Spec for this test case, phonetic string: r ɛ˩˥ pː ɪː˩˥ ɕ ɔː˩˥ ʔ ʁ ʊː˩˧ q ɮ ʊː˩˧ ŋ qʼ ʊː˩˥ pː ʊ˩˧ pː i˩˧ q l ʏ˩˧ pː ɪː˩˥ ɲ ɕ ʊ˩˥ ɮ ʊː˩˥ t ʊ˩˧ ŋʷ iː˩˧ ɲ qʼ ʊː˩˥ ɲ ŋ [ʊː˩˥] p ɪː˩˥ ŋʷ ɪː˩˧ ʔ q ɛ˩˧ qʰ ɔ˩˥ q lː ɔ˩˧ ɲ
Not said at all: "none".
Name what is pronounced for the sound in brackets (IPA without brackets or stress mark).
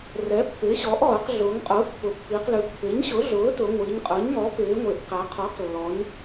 ɔː˩˥